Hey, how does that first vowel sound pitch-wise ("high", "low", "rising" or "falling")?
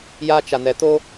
high